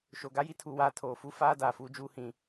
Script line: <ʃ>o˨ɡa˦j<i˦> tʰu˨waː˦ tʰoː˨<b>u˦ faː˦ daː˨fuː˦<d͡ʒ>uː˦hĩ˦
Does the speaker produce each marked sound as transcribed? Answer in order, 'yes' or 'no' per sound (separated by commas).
yes, yes, no, yes